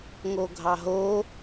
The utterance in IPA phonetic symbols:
ŋ o ɡʱ ɑ ɦ o

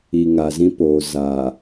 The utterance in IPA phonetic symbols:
i˨ ŋ a˨ z ĩ˦ p oː˨ z a˨

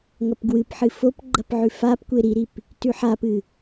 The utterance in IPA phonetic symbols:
ŋ ɐ p ɡ w ɨ p ħ ɨ f o p ɡ͡ǃ ɐ p ʕ ʉ f a p kʷ e ɾ i ɾ i p | t ʉ ħ a p ɨ

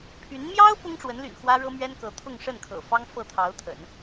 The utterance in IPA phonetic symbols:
pʰ y˧˥ n m j ɑ˥ ʊ̯ p ʊ˥ ŋ ʈ͡ʂ w ə˧˥ n l y̰˨˩ n x w ä˥ ɻ ɤ˥ m ɥ ɛ˥ n k ɤ˧˥ t̪ʰ ʊ˥˧ ŋ ʂ ə˥˩ n kʰ ɤ̰˨˩ f ɑ˥ ŋ f ɤ˥˩ t̪ʰ ɑ˧˥ ʊ̯ t̪ʰ ə̰˨˩˦ n

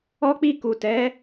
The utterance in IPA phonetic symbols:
ɔ˦ k͡p i˦˨ k u˨ t ɛ˨˦

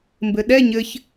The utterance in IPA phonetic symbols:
m b ɘ ɗ ɛ ɲ ɘ ç

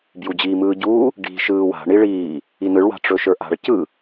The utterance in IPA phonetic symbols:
b j u d͡ʑ iː m ɯː ɟ uː | ɖ i̤ ʃ ɯː w a̤ ɳ i ɭ iː | i n ɯ ɭ w a̤ ʈ͡ʂ ɵ ʃ ə˞ ʔ a̤ ɭ c ɯ

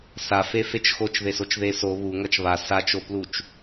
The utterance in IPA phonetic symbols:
s a f e f e t͡ʃ x o t͡ʃ ð e s o t͡ʃ ð e s o β u ŋ ʌ t͡ʃ β a s a t͡ʃ o p l u t͡ʃ

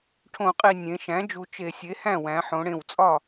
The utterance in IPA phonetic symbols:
ʈʰ õ˧˩˧ qʼ i˨˩ nʲ ẽ˩˧ ʃ æ̃˩˥ d͡ʒ u˩˧ t͡ʃ e˧˩˧ sʲ e˩˥ h æ̃˥˩ w æ̃˩˧ ħ õ˩˧ ɽ ẽ˨˩ w t͡sʼ ɒ˥˩

